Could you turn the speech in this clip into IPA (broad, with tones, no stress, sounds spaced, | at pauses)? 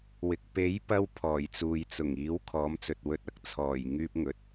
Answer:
w ɪ˨ k̚ p e˨˥ j p ɐ˧ w pʰ ɔː˨˩ j t͡s uː˨ j t͡s ʊ˨˩ ŋ iː˨˥ w kʰ ɔː˨˥ m t͡s ɵ˨ t̚ w ɵ˧ t̚ ɐ˨ k̚ t͡sʰ ɔː˨˩ j ŋ yː˥ p̚ ŋ ɵ˨˥ t̚